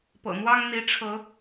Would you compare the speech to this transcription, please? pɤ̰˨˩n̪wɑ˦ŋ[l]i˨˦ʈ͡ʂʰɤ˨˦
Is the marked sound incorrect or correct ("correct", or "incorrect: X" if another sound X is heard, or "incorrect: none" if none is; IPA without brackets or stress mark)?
incorrect: n̪